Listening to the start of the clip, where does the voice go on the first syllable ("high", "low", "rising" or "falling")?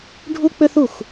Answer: high